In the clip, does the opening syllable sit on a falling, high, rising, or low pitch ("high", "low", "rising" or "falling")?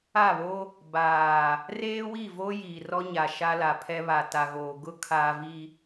falling